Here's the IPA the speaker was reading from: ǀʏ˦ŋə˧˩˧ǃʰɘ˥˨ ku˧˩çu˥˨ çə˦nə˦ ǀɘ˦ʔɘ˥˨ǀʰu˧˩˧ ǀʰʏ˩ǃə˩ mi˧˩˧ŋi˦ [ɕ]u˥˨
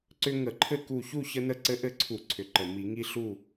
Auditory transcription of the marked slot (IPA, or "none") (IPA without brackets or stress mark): ɬ